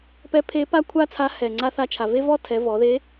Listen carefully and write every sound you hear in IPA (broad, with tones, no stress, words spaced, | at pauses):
pɛ˧˥pʰe˧˥ pa˥kʷʰa˥t͡sʰa˧˥ hɛ˩ ŋ͡ǀa˧θa˧t͡ʃʰa˩ ve˥vɔ˥tʰɛ˩˧ vɔ˩˧ðe˧˥